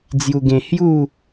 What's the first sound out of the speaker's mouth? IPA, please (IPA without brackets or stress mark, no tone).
d͡z